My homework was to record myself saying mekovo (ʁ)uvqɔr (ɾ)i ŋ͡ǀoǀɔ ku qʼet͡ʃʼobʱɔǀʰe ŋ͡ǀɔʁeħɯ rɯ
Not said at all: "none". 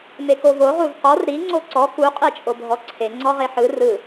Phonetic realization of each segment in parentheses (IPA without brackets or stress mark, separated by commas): ʁ, ɾ